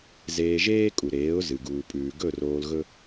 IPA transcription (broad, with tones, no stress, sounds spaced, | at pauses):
z eː˧ ʒ eː˥ kʼ u˩ ɾ eː˩˥ ʊ̯ z ɨ˩ ɡ uː˩ pʼ ʉː˩ ɡ ɵ˥˩ r oː˧ l ɣ ɵ˥